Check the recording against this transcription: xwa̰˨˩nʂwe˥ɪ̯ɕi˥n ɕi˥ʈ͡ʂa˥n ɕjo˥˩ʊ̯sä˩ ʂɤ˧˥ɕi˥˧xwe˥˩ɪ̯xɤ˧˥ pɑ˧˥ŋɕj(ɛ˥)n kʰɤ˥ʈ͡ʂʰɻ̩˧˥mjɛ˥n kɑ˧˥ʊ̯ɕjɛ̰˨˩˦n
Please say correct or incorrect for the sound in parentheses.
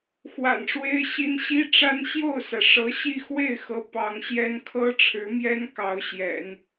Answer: correct